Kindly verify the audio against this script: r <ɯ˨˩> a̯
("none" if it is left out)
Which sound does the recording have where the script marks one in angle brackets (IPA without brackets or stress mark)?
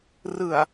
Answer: ɯ˨˩